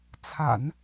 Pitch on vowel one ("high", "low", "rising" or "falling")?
low